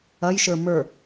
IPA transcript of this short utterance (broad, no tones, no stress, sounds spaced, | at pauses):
ɐ j ʃ ə˞ m ə˞